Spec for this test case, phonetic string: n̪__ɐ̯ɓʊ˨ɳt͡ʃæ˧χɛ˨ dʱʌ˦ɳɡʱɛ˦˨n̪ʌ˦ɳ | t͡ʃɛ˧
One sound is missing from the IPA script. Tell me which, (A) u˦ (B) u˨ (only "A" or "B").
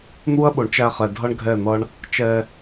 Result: A